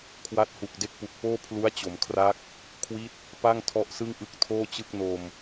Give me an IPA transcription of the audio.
kʰ w a˦˥ t̚ h u˨˩ k̚ d e˦˥ k̚ p u˨˩ k̚ p oː˥˩ pʰ l u˦˥ a̯ t͡ɕ o˩˦ m kʰ r a˦˥ k̚ | kʰ w i˦˥ t̚ | p a˥˩ ŋ tʰ ɔ˦˥ ʔ s ɯ˥˩ ŋ ʔ ɯ˦˥ k̚ tʰ oː˥˩ t͡ɕ ɯ˥˩ k̚ n o˧ m

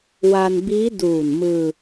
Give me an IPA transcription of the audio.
w a˧ n b iː˦˥ d uː˨˩ n m ɯː˧

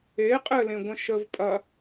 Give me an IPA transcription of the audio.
e qʼ ɘ l ẽ ɡʷ ə̃ ʃ ə v pʼ ɐ

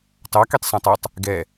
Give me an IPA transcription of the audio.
t ɑ k i tˤ s ũ tˤ ɛ tˤ | ɡ ɛ

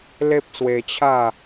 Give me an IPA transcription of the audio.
l e˦ p̚ s w e˧ t͡ɕʰ a˥˧

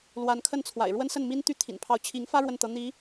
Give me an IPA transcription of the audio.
l w a˧˥ n kʰ ə˥˩ n t͡sʰ w a̰˨˩ ɪ̯ ɻ w ə˥ n s ə˥˩ n m i˥ n t̪ y˥ t̪ʰ ḭ˨˩ n pʰ ɑ˧˥ ʊ̯ t͡ɕʰ i˧˥ ŋ f ä˥ ɻ w ə˥˩ n t̪ ɤ˧˥ n̪ i˧˥

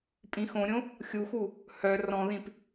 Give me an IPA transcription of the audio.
pʼ ĩ x õ ɾʲ õ | xʲ u x u | h œ r ɔ̃ ð ĩ p

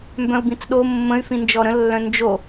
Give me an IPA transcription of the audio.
m b œ̃ u̯ b ĩ t͡s ɗ o mː ə̃ y̯ f ĩ n d͡ʒ ɔ ɾ ə̃ lː œ̃ n d͡ʒ o

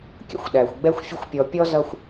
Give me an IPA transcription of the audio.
kʲ ə̰˥ xʷ ɗ æ˩ xʷ ɡ͡b ɛ˦ xʷ fʲ ə˦ xʷ pʲ ɔ˨ pʲ ɔ˥ z ʌ˦ xʷ

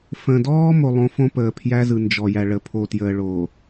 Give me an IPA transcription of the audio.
f ə̃˨ d ɔː˦ m o˦ lˠ õ˦ f õ˦ p əː˨ pʰ j æ˦ z ɯ˨ n d͡ʒ ɔ˨ j æ˨ ɭ ə˨ pʰ o˨ t j əː˨ ɭ oː˨

